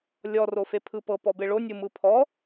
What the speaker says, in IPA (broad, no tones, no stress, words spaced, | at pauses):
lʲɔ rofepʰɯpɤ pɔbeɭo nʲɯmɯpʰɔ